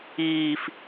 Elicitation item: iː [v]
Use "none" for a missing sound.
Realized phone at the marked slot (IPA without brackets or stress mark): f